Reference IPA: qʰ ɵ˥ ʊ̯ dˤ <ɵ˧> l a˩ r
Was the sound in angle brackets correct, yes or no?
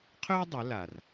no